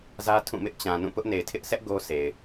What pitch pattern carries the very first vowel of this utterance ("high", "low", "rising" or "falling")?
high